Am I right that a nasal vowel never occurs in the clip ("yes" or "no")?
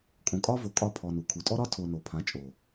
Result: no